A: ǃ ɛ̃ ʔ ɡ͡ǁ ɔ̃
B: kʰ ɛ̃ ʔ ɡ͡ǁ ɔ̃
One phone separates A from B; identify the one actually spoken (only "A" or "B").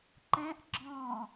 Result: A